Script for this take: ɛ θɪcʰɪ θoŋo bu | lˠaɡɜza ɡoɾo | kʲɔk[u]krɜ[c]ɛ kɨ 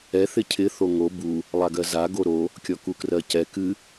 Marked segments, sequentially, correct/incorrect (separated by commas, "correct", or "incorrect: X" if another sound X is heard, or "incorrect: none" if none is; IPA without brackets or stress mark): correct, correct